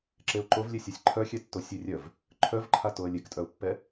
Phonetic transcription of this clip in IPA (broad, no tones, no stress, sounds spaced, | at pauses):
ǁ e ʊ̯ ǃ o v lʲ e sʲ a sʲ ǃʰ œ xʲ ɛ tː o sʲ e rʲ œ v | ǃʰ œ v ǃʰ a t o ə̯ lʲ e k tʼ œ ʊ̯ pː ɛ